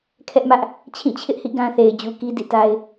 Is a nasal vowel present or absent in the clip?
present